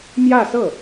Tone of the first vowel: falling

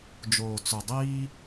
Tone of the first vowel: low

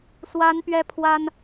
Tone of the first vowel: high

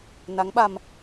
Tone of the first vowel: rising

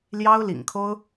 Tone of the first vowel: high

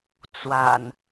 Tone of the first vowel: low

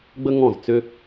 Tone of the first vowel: high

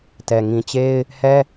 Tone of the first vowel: low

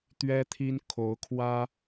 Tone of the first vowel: high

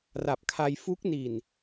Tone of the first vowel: low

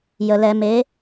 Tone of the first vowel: low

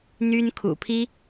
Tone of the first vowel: high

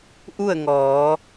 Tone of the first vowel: falling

